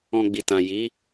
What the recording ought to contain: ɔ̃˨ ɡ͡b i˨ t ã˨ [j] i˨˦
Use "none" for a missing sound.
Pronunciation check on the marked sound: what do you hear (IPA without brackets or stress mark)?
j